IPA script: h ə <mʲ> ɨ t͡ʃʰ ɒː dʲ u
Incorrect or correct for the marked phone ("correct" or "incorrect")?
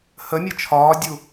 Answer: correct